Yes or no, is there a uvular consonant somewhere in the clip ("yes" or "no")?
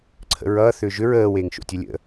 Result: no